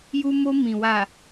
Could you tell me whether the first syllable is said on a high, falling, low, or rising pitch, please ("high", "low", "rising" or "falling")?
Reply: high